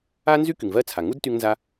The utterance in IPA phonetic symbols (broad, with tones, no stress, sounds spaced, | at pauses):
a˥ n z y˥ k y˩ ŋ v ɜ˧ t͡sʰ a˩ ŋ u˥ d t y˧ ŋ n z a˧